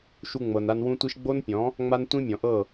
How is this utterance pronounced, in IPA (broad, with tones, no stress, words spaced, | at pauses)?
ʃu˧ŋ͡mɤ˨na˧n wũ˦tʷi˦ʃ ɡ͡bo˦npʲɔ̃˨˦ | ŋ͡ma˦ntʷĩ˦mʲɔ̃˨ʔɤ˦˨